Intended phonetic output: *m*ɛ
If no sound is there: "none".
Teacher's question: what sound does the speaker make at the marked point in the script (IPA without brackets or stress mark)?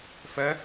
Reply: f